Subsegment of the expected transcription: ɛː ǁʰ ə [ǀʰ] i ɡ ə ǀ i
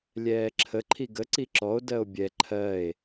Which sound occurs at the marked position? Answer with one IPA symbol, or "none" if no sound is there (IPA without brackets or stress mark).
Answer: ǃʰ